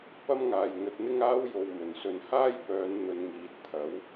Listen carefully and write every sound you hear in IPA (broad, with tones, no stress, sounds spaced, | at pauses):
p ɐ˥ m ŋ aː˨ j ŋ ɵ˧ t̚ n̪ ɪ˥ ŋ aː˥ w j o˧ w m ɵ˨˩ n s ɵ˨ n h aː˥ j p œː˨˧ n n̪ ɵ˨˧ n ŋ iː˨ t̚ t̪ʰ ɐ˨˥ w